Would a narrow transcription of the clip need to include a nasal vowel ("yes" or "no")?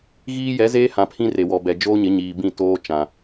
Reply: yes